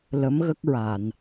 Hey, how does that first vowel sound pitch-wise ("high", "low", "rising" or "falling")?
rising